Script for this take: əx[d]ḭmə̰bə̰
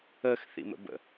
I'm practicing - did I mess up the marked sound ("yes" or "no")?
yes